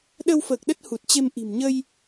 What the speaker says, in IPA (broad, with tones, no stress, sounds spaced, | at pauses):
ɗ ə˧ w f əː˨˩ k̚ ɗ ə˦˥ t̚ h u˨˩ t̚ t͡ɕ e˧ m ʔ i̤˨˩ m ɲ ə˧ j